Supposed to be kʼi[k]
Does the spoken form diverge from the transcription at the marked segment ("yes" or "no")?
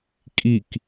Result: no